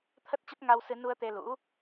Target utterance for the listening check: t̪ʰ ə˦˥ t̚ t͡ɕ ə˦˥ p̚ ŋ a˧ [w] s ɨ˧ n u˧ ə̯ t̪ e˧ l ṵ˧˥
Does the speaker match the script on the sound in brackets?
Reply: yes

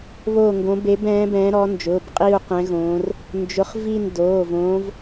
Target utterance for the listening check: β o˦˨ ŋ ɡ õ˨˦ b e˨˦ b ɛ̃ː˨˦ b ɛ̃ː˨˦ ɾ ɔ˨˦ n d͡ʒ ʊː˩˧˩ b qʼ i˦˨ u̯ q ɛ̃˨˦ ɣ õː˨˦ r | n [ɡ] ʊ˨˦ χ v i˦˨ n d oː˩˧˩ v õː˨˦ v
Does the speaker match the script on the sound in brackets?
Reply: no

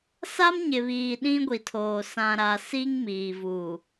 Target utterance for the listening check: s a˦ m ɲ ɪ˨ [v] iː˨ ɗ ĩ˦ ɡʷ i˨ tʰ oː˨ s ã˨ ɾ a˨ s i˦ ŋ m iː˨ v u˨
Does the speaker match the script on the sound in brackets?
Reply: no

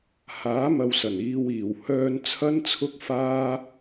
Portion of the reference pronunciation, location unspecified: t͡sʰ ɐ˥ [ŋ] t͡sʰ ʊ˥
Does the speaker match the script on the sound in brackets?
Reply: no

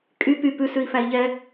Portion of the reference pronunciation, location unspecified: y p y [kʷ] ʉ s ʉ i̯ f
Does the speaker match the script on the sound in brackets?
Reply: no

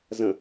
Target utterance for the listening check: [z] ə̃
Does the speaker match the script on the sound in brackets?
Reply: yes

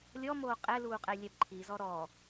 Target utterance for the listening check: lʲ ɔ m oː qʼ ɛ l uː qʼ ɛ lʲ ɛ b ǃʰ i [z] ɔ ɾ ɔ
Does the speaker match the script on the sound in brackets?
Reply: yes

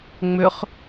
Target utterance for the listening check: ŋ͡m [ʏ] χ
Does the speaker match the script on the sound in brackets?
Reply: yes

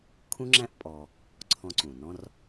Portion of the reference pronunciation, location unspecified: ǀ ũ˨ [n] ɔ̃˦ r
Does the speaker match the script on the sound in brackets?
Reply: yes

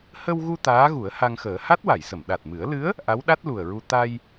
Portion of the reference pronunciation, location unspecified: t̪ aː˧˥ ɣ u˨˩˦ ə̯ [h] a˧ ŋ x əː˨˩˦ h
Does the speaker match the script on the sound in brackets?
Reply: yes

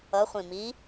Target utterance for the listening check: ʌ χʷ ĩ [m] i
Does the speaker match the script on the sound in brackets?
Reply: yes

